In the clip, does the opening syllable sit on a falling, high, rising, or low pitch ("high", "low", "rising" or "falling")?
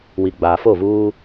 low